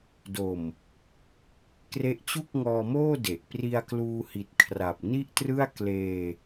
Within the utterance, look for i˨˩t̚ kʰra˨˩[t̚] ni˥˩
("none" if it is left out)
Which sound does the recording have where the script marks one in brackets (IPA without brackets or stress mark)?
p̚